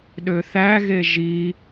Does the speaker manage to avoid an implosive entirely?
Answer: no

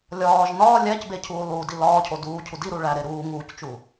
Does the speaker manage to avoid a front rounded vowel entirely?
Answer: yes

